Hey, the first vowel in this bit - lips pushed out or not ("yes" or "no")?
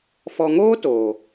yes